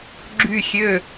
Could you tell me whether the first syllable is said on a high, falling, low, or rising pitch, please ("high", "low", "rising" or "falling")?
falling